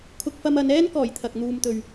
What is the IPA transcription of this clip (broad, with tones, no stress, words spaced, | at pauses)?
kʰʊ˧k̚fɐ˧m ɐ˨˧n ɛː˥nkɔː˨˩j t̪ʰɐ˨k̚ n̪uː˨mt̪ɵ˨ɥ